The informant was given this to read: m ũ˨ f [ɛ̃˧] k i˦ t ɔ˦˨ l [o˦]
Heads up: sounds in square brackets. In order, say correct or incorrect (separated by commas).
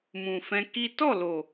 correct, incorrect